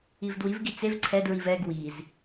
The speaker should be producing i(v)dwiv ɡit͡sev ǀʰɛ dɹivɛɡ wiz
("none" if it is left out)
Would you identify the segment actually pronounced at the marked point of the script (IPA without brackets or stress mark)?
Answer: v